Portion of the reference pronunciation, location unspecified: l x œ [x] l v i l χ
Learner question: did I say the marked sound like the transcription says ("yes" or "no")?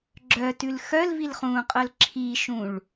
no